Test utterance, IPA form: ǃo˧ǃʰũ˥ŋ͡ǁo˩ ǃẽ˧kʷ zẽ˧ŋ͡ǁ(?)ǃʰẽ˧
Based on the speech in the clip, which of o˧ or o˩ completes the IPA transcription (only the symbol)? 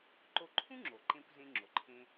o˩